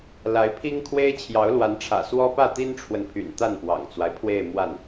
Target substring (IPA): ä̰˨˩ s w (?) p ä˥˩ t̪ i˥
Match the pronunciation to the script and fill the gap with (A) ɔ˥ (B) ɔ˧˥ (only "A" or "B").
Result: A